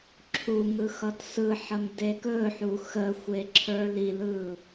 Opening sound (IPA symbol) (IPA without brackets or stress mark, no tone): ǁʰ